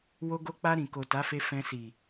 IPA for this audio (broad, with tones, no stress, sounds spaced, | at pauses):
w o˧ ɡ o˧ k͡p a˧ ɾ ĩ˨ k o˨ t a˨˦ f e˧ f ɛ̃˧ s i˨